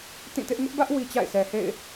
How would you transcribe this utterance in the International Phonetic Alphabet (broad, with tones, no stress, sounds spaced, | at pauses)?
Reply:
t ĩ˦˨ t ɪ˦ ʔ ŋ ʊ˦ ʔ b ä˦ ʔ w i˦ t͡ɕ a̰˦˨ ɪ̯ sʰ ɛ˨ h ḛ˦˨ ɪ̯